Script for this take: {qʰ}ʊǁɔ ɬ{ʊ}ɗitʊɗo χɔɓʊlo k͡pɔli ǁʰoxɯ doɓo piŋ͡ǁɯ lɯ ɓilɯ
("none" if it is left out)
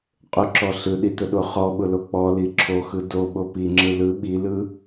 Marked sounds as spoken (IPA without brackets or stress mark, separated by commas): qʼ, ɯ